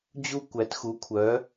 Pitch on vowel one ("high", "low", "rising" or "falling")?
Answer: high